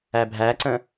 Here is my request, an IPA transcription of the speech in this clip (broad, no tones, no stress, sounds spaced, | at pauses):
æ bʱ æ ǀ ə̃